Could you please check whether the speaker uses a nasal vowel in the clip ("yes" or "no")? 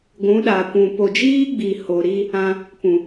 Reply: yes